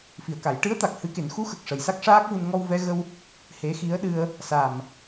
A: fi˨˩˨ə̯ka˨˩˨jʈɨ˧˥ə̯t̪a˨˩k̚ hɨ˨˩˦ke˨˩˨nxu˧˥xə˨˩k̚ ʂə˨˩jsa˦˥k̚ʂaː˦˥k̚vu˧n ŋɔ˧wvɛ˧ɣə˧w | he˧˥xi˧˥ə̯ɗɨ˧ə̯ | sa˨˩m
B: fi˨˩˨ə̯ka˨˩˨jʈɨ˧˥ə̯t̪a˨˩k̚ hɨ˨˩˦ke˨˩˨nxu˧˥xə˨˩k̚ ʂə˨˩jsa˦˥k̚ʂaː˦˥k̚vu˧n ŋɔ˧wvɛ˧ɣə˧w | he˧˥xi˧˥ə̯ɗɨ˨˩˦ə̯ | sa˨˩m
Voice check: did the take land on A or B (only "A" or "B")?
A